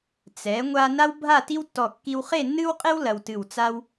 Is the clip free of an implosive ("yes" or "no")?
yes